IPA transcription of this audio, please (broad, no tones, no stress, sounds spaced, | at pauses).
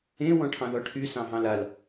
ẽ w ɔ̃ ʈʰ ɑ̃ ð ɔ ʈʰ y s ɑ̃ ɦ ɑ̃ l a l